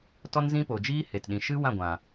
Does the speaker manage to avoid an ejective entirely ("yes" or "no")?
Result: yes